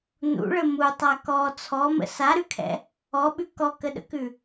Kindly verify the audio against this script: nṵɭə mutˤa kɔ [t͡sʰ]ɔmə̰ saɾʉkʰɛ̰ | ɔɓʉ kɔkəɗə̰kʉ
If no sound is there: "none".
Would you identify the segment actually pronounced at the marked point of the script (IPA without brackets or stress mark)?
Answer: t͡sʰ